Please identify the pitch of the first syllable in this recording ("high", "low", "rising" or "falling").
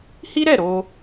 high